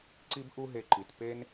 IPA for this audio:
ǀ i˦ b ʔ u˦ ɦ e˧ ǃ i˨ t p e˦ n

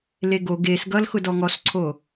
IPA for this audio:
l e ɡ o ɡ e s ɡ ʌ l x ʊ d ɔ ŋ ɔ s ǀʰ o

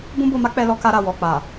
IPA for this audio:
b ũ˦ b o˧ m a˦ k͡p ɛ˧ l ɔ˧ k a˧ ɾ a˨ w ɔ˨ k͡p a˨

